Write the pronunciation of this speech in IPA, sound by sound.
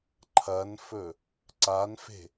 ǃʰɐnfɵ | ǀanfe̤

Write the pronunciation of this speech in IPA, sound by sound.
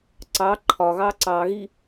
ǀɑ ǃʰɒɣɑ ǀɑɣi

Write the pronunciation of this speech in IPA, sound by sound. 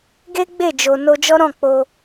ɡe˦ ɡ͡be˦˨d͡ʒo˨ no˧d͡ʒɔ˦ ɾɔ̃˦˨k͡po˧

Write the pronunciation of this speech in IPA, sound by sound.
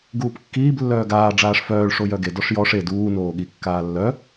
ɡuːpkːiːb lːœːɡaː ɖ͡ʐaːʂfœːɭ ʂojœɡe dɔʂjɔʂ e duː noːɠi kːaːlːœ

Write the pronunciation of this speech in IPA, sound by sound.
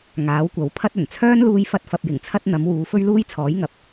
ŋaː˨˥wkʷɐ˨˥w pʰɐ˥t̚ɵ˨˩n t͡sʰœː˥nluː˧jfɐ˧t̚fɐ˨p̚ jɪ˨˩ŋt͡sʰɐ˥t̚ n̪ɐ˨˥mwuː˨˧ fɵ˥ɥluː˥jt͡sʰɔː˨˥jŋɐ˨˥p̚

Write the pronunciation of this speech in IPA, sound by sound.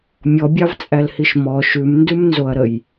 mʲɔbʲɑvt͡sʼælhiʃ mɔ ʃʉmndʉmnzoɐ̯ɾəj

